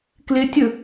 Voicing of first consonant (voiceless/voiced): voiceless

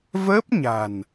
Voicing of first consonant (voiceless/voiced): voiced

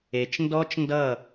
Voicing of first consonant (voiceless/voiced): voiceless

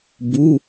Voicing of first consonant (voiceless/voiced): voiced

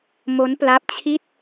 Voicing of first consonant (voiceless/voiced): voiced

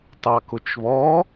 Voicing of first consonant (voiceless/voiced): voiceless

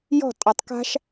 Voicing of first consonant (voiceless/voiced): voiced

